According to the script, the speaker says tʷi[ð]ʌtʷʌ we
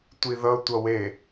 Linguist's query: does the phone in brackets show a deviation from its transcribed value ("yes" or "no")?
no